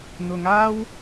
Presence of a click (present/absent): absent